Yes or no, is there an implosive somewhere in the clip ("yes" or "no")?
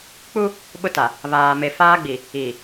yes